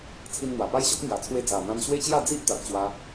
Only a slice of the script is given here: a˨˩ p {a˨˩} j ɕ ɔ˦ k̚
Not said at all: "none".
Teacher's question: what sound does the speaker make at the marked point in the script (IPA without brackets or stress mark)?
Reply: a˦